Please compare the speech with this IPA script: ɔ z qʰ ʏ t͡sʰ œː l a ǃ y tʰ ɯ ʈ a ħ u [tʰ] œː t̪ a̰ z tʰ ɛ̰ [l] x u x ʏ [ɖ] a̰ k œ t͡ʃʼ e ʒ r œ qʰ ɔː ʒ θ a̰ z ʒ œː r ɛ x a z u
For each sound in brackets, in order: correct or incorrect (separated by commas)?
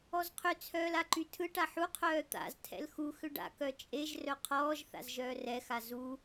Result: incorrect, correct, correct